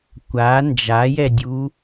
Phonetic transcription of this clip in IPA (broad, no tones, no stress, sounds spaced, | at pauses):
kʷ a n d͡ʒ a j ɛ dʲ u